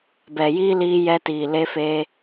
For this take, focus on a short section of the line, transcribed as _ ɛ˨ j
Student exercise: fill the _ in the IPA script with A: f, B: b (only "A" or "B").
B